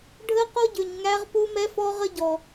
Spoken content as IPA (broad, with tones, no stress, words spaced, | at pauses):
ɖʱə˦qo˦ ɟʏ˨ɲŋæ˧ʁ pu˧mɛ˧fɔ˧ʁə˧ ɟɔ˨